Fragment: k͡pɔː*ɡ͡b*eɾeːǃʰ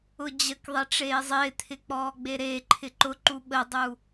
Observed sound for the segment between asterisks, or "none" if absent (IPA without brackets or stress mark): ɡ͡b